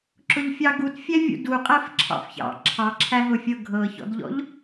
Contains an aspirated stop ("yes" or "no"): yes